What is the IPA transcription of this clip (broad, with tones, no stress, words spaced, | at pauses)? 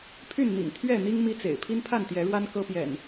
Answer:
pʰy˥˨nn̪ḭ˨˩ŋ t̪ʰɥɛ˥˨n̪i˦ŋ mi˦t͡sḛ˨˩ɪ̯ pʰi˦npʰa˥˨nt̪jɛ˨˦ɻwa˦n kɤ˦pjɛ̰˨˩n